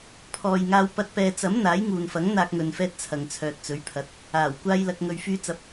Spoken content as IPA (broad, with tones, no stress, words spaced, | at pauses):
pʰɔː˨jŋaː˧wpɐ˧t̚ pɛː˨t͡sɐ˨˥m n̪aː˨˥jŋuː˨nfɐ˨˥ŋ n̪aː˧k̚ŋɵ˨nfɛː˧t̚ t͡sʰɐ˨ŋt͡sʰœː˨t̚t͡sɵ˨˥ɥpʰɐ˨˥t̚ | aː˨˩w kʷaː˧jlɐ˨k̚ ŋɵ˨ɥfyː˧t͡sɐ˨p̚